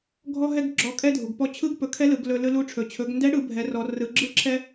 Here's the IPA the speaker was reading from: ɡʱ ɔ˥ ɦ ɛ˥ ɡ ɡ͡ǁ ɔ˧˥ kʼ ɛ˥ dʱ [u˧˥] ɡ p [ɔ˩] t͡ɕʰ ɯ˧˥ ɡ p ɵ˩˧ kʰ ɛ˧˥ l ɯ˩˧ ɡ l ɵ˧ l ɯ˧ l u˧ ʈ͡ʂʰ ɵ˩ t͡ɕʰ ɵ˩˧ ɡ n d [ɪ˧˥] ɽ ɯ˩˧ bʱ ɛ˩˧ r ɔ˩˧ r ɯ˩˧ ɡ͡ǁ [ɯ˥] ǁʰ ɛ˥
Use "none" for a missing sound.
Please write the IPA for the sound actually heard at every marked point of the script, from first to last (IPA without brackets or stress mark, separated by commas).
u˩, ɔ˧, ɛ˧˥, ɯ˥